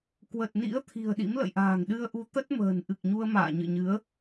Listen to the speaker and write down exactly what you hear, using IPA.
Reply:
k w ə˨˩ t̚ n ḭ˧˥ ə̯ t̪ʰ i̤˨˩ ə̯ ɗ ḭ˧˥ m l ə̰˧˨ j ʔ a̤ː˨˩ ŋ ɗ ɨ˧ ə̯ ʔ u˨˦ t̪ ə˦˥ t̚ m ə̤ː˨˩ n ʔ ɨ˨˩ k̚ ɲ u˧ ə̯ m a̰ː˧˨ ɲ ɨ̰˧˨ ɲ ɨ˨˦ ə̯

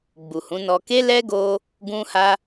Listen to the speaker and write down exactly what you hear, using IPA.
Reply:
ɡ͡b u˨ h ũ˨˦ n ɔ˧ k e˦ l ɛ˦ ɡ o˧ | ɡ ũ˦ h a˦

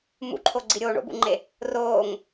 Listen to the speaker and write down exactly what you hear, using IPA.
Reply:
m ṵ ǃʰ o ɡ͡ǀ i ɾʲ oː ɳ o̰ b ṵ ŋ͡ǃ e | r oː ŋ

